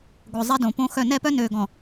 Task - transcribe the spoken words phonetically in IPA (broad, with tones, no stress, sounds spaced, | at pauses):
ɡʷ œ˨ zˤ e˦ d õ˨ p õ˦ x œ˦˨ n ɛ˦˨ p œ˦ n øː˨ ɡ ɔ̃˨